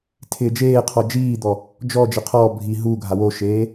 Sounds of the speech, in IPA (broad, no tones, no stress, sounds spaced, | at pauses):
tʰ ɪː d͡ʒ eː qʰ ɔ d͡ʒ iː d̪ ɔ | d͡ʒ ɔ d͡ʒ ɪ qʰ ɔː bʱ i ɦ u ɡʱ a w o ʃ eː